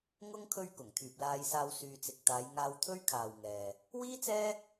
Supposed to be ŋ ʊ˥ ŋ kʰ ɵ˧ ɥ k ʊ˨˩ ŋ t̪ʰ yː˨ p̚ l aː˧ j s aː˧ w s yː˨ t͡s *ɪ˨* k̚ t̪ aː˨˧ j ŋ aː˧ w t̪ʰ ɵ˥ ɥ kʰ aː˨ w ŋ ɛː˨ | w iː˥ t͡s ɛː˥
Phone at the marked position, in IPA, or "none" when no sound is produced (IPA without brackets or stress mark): ɪ˨